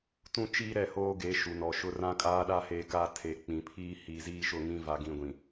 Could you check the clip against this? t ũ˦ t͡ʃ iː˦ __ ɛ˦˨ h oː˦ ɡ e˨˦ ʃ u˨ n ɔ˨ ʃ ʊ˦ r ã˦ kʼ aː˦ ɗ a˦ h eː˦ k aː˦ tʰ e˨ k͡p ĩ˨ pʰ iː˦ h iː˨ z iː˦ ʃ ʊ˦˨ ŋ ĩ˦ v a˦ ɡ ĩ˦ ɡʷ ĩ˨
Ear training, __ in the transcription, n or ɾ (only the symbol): ɾ